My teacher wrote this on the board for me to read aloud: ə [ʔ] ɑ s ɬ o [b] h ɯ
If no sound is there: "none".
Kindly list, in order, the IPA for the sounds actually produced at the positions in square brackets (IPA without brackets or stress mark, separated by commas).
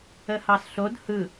h, d